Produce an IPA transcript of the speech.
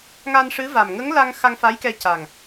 ŋ a˧ n ʂ ɨ˧˥ v a˨˩ m ŋ ə˧˥ ŋ l a˧ ŋ x a˧ ŋ f a˧˥ j k ɛ˧ c a˨˩ ŋ

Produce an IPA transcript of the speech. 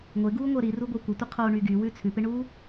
ŋʷ ɪ ɡ uː ŋʷ əː ɾ i r u ɡʷ ə˞ kʷ ɪ tʷ ə qʰ oː ɳ y ɡ y w ʉ t͡sʰ ʉ p ɪ ɳ uː

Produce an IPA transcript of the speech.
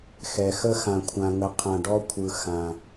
x ɛ˨ x ə˦ x ã˨ kʷʰ ã˨ ŋ ə˨ qʰ ã˨ ɖ ɔ˦ kʷʰ ɯ˨ x ã˨

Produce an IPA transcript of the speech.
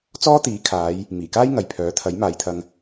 t͡s ɔː˥ t̪ iː˨˥ kʰ aː˨˧ j | m iː˨˩ k aː˥ j ŋ ɐ˨ j pʰ œː˨˥ t̪ʰ ɐ˨˥ j m aː˨˧ j t̪ʰ ɐ˧ ŋ

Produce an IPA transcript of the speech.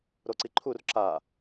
ɾ o ǀ i ǃʰ u r ǁ a

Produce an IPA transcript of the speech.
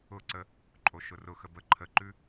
ʊ ǀ ə | ǃʼ o ʃ ʊ r ʊ x ə b ə ǃʰ ə ǃ ʉ

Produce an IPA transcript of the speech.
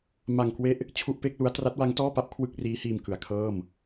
m a˧ ŋ k w e˦˥ ʔ | t͡ɕʰ u˥˩ ʔ p e˥˩ k̚ l u˦˥ a̯ t r a˦˥ t̚ w a˦˥ ŋ t ɔː˥˩ p a˦˥ p̚ kʰ w ɯ˥˩ k̚ r iː˦˥ h iː˧ m k ɯ˩˦ a̯ kʰ ɤː˥˩ m

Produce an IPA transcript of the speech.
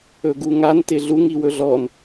ɵ ɡ u ŋ a n t ɪ ɮ u ŋ i w ɵ ɮ ɔ n

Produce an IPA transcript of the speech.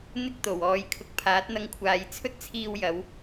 n̪ ɪ˥ k̚ t̪ o˨˩ w ɔː˨˧ j kʰ ʊ˨ k̚ pʰ aː˨˥ t̚ n̪ ɐ˧ ŋ kʷʰ aː˨˧ j t͡sʰ ɵ˥ t̚ t͡sʰ iː˧ w j ɐ˨˧ w

